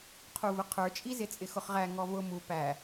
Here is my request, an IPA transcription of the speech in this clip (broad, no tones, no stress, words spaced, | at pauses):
qʰuvʊqʰə˞t͡ʃʼi zɪt͡sʼɪxʊχʁæ ŋɔvʊ mu pæ